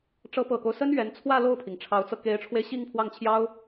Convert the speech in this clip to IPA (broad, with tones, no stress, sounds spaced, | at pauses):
ʈ͡ʂ ɤ˧˥ p ɤ˨˩ k o˦ ʊ̯ s ə˥ n ɥ ɛ˧˥ n t͡sʰ w ä˥˧ l o˥˩ ʊ̯ pʰ i˩ ŋ ʈ͡ʂʰ ɑ˧˥ ʊ̯ t͡s ɤ˧ k e˧˥ ɪ̯ ʈ͡ʂʰ w e˧ ɪ̯ ɕ i˥˧ ŋ pʰ w ɑ˥˩ ŋ t͡ɕʰ j ɑ˥ ʊ̯